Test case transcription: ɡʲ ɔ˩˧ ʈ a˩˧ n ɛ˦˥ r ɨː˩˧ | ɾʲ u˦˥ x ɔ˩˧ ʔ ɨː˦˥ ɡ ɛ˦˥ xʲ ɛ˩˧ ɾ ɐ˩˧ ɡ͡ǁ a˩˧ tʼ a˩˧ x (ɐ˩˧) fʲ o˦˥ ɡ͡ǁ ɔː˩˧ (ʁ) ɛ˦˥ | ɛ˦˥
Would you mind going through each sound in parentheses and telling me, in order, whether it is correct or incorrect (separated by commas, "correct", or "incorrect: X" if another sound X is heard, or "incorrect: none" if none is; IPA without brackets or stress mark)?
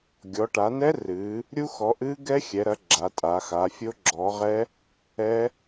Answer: incorrect: a˩˧, correct